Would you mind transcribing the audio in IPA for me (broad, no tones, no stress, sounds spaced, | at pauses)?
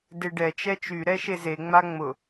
d e ɖ ɛ t͡ʃ ɛ t͡ʃ y ɾ ɛ ʃ e z e ŋ͡m a ŋ͡m ʊ